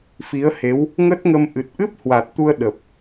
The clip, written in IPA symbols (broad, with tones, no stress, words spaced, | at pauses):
fi˨˦ə̯he˨˦w | ŋə˦˥t̚ŋə˧mʔɨ˨˩t̚ ʔɨ˦˥p̚hwa˨˩t̚t̪u˧ə̯ ɗə˨˩p̚